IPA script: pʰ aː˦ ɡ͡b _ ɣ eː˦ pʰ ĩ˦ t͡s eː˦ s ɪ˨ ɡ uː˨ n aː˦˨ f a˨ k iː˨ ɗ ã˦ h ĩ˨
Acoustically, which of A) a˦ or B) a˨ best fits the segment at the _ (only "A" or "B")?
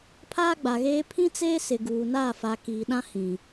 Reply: B